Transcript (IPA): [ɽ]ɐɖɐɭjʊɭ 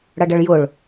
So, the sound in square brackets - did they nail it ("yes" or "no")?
yes